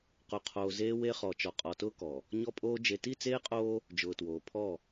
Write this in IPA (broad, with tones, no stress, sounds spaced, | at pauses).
q o˨ qʰ oː˨ z eː˦ w e˦ χ ɔ˨ t͡ʃ ɔ˨ qʼ ɔ˨ t ʊː˦ k ɔ˨ | ɲ ɔ˦ pʼ oː˦ d͡ʒ e˨ t i˦˨ t͡s eː˦ qʼ oː˦ | d͡ʒ ʊː˨ t w oː˨ pʰ ɔ˦˨